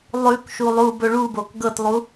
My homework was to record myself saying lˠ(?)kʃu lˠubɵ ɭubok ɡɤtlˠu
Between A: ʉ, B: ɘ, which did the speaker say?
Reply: A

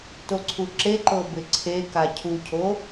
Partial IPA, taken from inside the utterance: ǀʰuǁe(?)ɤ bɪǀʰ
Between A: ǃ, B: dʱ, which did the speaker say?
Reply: A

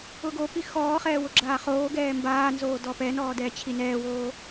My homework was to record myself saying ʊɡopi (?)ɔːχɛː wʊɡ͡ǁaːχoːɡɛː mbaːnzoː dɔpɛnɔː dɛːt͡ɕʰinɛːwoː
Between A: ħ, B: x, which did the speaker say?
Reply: B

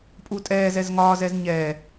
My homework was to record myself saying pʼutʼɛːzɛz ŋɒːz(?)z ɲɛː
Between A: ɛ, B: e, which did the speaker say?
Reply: A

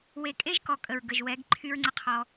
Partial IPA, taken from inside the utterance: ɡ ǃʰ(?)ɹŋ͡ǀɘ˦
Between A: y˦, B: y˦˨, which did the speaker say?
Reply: A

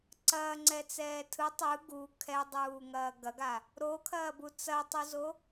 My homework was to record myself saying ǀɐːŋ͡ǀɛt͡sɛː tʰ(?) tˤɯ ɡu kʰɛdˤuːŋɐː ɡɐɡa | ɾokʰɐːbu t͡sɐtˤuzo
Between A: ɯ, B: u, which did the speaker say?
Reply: A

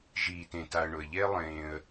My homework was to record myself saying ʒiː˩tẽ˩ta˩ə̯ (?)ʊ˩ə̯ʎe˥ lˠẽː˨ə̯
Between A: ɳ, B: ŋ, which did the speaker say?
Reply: A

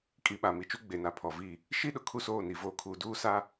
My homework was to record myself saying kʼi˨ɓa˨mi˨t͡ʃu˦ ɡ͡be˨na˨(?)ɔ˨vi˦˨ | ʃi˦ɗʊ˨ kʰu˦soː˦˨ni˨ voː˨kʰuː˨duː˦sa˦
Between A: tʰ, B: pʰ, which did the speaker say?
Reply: B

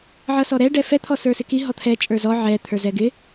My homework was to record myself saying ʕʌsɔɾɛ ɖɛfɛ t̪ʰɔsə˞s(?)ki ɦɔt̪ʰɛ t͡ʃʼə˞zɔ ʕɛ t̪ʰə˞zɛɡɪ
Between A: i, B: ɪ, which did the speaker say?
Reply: B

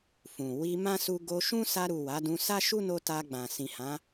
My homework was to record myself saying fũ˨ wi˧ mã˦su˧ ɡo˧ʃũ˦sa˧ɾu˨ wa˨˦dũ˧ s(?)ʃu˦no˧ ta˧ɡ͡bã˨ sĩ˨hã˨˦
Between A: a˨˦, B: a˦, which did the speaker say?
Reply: B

